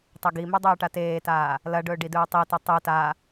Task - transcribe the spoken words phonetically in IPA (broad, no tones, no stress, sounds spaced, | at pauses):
tˤ ɐ ɡ i m ʉ dˤ ɵː ʈ a t eː t aː | l ɐ ɖ ɵː ɖ i d ɵː tˤ i t o tˤ ɨ t a